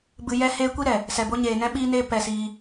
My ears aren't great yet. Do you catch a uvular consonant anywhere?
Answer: no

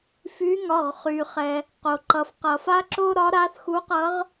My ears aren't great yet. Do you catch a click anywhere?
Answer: yes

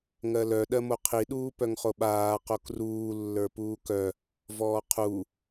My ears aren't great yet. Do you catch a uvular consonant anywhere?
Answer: yes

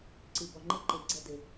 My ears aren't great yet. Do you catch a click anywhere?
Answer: yes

